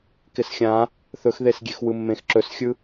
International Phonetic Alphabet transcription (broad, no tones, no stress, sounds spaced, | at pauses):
k ɪ s xʲ ã | θ ɵ x ð e s ɡʲ e x w ɯ mː ẽ x ǁ ɵ s xʲ ɯ